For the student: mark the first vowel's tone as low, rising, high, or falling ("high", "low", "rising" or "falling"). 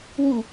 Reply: low